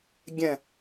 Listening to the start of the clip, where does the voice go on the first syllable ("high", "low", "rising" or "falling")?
low